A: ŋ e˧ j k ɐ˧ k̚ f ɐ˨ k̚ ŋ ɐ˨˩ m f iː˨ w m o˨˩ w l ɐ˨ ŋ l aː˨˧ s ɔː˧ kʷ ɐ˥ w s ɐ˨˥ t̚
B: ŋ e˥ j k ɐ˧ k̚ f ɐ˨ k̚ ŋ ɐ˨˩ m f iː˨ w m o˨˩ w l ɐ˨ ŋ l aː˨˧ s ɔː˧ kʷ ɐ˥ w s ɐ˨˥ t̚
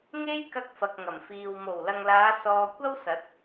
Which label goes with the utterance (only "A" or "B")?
B